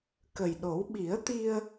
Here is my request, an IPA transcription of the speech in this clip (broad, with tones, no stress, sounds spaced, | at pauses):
k ə˨˩ j ɗ o˨˩˦ w ɓ i˨˩˦ ə̯ t̪ i˧ ə̯